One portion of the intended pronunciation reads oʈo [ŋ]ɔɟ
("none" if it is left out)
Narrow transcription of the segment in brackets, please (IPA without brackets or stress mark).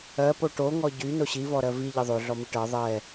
ŋ